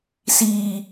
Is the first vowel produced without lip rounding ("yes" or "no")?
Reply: yes